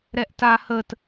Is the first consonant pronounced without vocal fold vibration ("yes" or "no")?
no